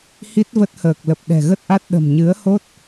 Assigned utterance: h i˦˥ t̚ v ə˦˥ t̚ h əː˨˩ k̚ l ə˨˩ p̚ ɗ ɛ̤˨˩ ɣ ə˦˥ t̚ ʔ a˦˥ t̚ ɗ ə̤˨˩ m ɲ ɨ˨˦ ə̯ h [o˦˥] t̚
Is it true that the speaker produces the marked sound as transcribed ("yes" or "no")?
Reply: yes